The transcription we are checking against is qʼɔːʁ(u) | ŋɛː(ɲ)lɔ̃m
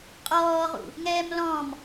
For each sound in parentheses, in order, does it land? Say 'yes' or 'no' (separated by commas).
no, no